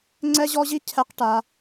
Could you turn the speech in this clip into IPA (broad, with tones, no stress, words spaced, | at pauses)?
ŋ͡ǀɛ˦ʑɔ˦ʑi˦ cʰɛ˦qʈa˦